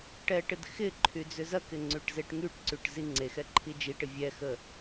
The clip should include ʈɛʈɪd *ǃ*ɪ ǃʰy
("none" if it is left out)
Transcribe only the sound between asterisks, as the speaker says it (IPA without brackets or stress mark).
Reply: x